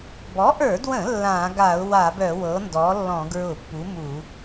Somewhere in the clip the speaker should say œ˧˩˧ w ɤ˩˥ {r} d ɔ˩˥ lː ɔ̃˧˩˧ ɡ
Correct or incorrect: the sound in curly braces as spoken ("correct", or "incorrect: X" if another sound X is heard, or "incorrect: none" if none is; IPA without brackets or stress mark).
incorrect: n